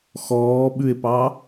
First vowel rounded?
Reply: yes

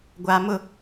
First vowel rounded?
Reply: no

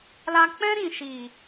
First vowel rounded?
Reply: no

